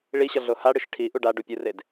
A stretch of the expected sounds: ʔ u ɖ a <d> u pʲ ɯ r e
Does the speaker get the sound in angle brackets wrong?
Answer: yes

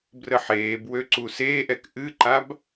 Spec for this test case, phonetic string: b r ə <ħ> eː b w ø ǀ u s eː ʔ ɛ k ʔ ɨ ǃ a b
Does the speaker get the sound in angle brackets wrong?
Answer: no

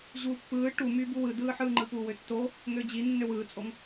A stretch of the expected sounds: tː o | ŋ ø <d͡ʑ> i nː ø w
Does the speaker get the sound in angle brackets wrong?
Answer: no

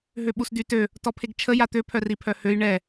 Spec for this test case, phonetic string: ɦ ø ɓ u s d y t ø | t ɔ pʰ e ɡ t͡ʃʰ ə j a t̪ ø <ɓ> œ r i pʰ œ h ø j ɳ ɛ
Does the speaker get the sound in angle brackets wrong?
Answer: yes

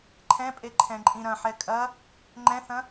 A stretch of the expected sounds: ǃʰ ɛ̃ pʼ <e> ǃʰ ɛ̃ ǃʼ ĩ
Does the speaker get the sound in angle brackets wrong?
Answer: no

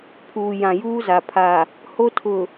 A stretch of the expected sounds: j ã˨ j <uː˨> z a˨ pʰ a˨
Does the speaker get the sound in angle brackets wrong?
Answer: yes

